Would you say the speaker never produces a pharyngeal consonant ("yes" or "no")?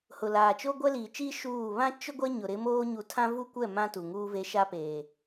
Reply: yes